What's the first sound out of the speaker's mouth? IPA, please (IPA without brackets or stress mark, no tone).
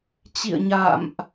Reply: t͡ɕ